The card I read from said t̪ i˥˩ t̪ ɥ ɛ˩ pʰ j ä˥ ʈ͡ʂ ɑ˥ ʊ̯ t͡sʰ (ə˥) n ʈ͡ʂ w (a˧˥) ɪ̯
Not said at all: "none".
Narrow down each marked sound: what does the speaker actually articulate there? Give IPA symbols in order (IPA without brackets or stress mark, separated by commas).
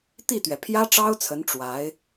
ə˧˥, a˧˥